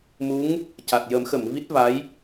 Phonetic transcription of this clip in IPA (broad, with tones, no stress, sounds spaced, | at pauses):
m u˧˥ ŋ | c a˨˩ t̚ j ə˨˩˦ m x ə˨˩˨ m v i˦˥ t̚ v a˧˥ j